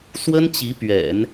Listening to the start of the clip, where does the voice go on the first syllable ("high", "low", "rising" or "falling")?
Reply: high